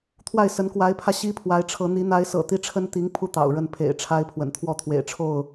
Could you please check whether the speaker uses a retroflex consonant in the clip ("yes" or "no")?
yes